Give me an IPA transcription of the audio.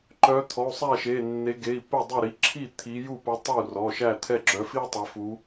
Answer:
ǃœ˨˦t̪ʰɔ˩˧˩u̯ sˤæ˥˩ʃe˩˧˩nːe˨˦ ɡe˩˧˩i̯ pe˥˩dˤœ˥˩ɾi˩˧˩ ǁʰi˥˩ t̪ʰi˨˦ju˥˩pu˨˦ tˤu˥˩rɔ˩˧˩ ʃæ˥˩t̪ʰɛ˥˩ɡ͡ǁœ˨˦fi˥ tˤɛ˨˦fu˨˦

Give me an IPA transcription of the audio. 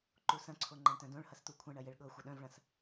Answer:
ǃusɐ̃ǀʰo ŋ͡ǃɐ̃ɳtœ̃dõɭhɐs t̪ukʷʰɐ̃ɳɐ jeɭɠɤxʷɐ ɗœ̃vɭɐ̃s

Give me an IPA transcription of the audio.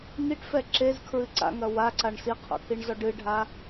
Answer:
ŋiʈfɛ ǁez kʰɹɨǀa̰ ŋɐwaǀaɳ siqʰo̰kʰiɳzɔ ɖɨɖʱa

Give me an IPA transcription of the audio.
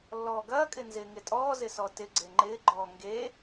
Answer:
lːɔːɡɐːkʼɪ nzɪːŋɪtʼɔːzɪ sɔtɪɡ͡ǀe ŋ͡ǃɪːɡ͡ǃɔː ŋɡe

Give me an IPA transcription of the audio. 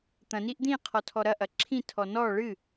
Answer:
t̪ɐ̃ niʔd̪ĩ qʰɔtʰɔɾɐ ʔɐǁʰĩ tʰɔnɔ ɭɨ

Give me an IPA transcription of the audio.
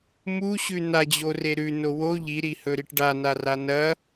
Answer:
muɕʉ nad͡ʑore ɾʉno wo ʎiɾihɵɾiʈ ɖanara nɐ

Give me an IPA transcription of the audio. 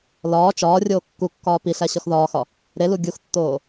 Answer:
lɒː t͡ʃɒː rʲoːkːukːɒː piɬæ ɕɒxðɒːxɒ | ɾelu ɡʲuxtːoː

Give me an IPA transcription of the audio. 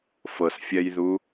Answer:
fɤsfʲɛjðu

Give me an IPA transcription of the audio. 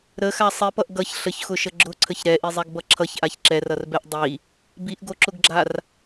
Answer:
ɾəxa sˤipʌʔ ɡʌç ɬəçxʊʃə ɡ͡ǁʊǀʰəç ɾɛʔizˤɛɡbʌ ǁʰʌçʔaç ǁɛrʌrbɛʔ dˤi | biʔɡoǁʊɡɡ͡ǁar

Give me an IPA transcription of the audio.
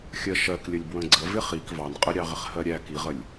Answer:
xʲɜʃɜklʲəlʲ bwə̃ɡ͡ǀə vɪχik vɑnqʼə ɾʲɑʁɪχhɜɾʲæ kiʁəlʲ

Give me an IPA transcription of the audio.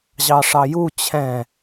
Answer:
ʑɑʂɑju t͡ɕʰɛ̃

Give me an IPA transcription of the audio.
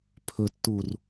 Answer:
pʰɵtːur

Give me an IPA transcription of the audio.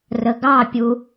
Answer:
rəɡɑpʲu

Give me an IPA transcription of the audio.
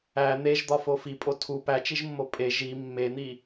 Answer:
æ n̪eʒd̪ɒfo fipʼo tʰu pæt͡ʃiʒmːo pʼe ʒi mːen̪i

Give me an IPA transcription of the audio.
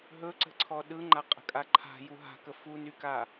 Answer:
ɦɵǀə̤ǀʰɔ ɗɯŋ͡ǃa qʼə̤kʼaǃʰa̤ juɦa̤kə funyka

